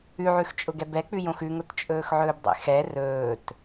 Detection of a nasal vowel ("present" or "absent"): present